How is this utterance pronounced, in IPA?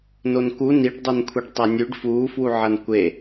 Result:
nonku niɖ dˤonkʷʰiɖtˤanʲʉɖ fu fwuʕɐnkʷe

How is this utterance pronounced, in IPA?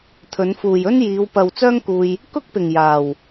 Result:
t̪ʰɵ˨˧nfuː˨jɵ˥n jiː˨˧wpɐ˨w t͡sœː˥ŋkuː˧j | kʊ˥k̚pɪ˨ŋ jaː˨w

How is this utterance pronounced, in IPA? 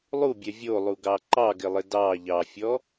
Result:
lˠubʲɛ vʲolˠuɡɑ ǃɑɡɪlˠɪ dɑ ʎɑfʲɔ

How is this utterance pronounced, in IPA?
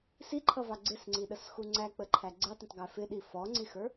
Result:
siǃʰʌvɑ ɡ͡ǀɪsŋ͡ǀiɗəsxu ŋ͡ǀæk͡pəǃʰæ ɡ͡ǀɛtˤə̃tˤɡæ fɪɗi fɔŋ͡ǀixə˞

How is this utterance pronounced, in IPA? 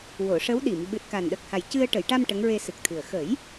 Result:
wo˨˩˨ʂə˧˥wɗi˨˩˨m ɓɨ˨˩t̚ka˨˩nɗə˨˩k̚ha˨˩j cɨ˧ə̯ ʈə˨˩˨jʈa˧m ʈə˧˥ŋɹe˧sɨ˨˩k̚t̪ʰɨ˨˩ə̯ xə˨˩˦j

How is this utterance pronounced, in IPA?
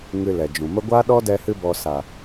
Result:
ŋɨ˨ lɛ˨d͡ʒũ˨mə˦ ɡʷa˦ɗɔ˦dɛ˧hɨ˧ bɔ˨sa˨

